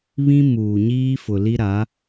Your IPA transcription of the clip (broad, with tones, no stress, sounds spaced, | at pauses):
β ĩ˦ m uː˨ ɲ iː˦ f ʊ˨ l i˦ ɾ a˨˦